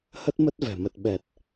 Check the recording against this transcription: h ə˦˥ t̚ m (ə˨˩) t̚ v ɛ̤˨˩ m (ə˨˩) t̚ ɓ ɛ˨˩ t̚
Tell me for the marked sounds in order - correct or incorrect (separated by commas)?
incorrect, correct